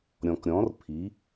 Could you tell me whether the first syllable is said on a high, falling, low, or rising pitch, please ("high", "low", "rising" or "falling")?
low